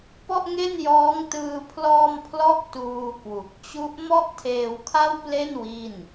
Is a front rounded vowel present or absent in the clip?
absent